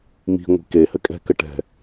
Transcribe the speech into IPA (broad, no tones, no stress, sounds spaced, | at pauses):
m i̤ ŋʷ i̤ k e h ɘ kʼ ɛ̤ k ɘ ʈ ɛ̤